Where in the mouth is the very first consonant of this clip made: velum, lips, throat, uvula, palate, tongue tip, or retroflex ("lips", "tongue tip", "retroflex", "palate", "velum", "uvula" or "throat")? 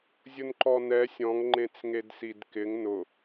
tongue tip